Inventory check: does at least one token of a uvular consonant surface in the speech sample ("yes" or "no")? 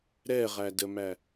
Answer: yes